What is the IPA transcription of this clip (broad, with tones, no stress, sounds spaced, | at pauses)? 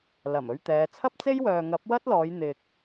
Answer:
l ɐ˨˩ m ɵ˧ ɥ t̪ ɛː˨˧ t͡sʰ ɐ˥ p̚ t͡s e˥ j w œː˨ ŋ ɐ˨˥ p̚ w ɐ˥ t̚ l ɔː˨˧ j n̪ ɪ˨ k̚